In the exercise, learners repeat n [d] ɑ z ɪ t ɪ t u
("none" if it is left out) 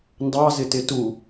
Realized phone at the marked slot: d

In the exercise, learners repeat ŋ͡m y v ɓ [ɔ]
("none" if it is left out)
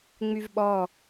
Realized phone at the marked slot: ɔ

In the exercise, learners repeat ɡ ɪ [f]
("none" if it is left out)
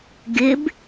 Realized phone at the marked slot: b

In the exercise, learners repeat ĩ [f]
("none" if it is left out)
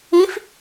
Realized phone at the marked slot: f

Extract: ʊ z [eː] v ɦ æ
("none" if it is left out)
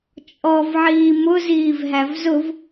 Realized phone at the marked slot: iː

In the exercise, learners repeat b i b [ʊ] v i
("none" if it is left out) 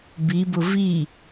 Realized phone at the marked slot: ʊ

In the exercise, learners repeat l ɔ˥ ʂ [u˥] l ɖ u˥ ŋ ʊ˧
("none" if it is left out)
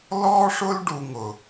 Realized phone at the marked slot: ʊ˥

